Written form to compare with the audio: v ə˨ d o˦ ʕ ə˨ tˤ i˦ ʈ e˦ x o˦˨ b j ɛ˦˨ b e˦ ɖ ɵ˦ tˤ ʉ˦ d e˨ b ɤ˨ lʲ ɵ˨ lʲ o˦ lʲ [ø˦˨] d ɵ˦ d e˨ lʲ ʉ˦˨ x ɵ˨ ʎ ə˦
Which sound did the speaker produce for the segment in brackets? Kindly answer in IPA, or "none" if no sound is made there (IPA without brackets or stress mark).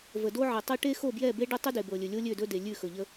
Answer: ø˦˨